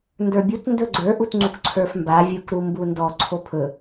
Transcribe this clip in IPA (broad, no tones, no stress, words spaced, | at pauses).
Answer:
ndə˞bʲut ndɵɡ͡ǀə˞ʔutŋ͡ǀuk ǀʰə˞fmba vʲukɾu mbundɔ ǀʰopʰɵ